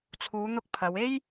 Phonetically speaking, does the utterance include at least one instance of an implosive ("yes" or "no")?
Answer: no